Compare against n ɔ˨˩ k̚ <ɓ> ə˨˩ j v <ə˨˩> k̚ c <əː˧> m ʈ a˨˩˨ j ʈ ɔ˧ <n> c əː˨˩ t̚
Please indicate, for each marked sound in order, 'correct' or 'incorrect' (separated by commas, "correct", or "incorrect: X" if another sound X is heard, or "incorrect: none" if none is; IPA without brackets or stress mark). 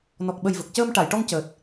correct, correct, correct, incorrect: ŋ